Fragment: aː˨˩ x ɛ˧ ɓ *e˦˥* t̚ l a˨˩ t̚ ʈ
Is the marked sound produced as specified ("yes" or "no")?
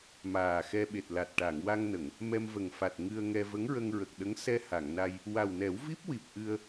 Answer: no